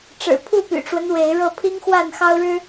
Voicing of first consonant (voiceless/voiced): voiceless